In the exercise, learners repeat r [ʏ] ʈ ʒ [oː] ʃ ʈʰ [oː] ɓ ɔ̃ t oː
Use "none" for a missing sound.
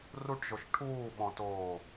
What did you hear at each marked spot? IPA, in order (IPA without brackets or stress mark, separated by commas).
u, o, uː